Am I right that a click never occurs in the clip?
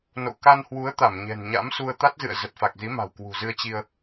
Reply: yes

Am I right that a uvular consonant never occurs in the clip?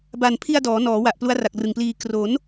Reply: yes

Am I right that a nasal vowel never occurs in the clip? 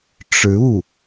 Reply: yes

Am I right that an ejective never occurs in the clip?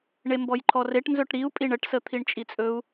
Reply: no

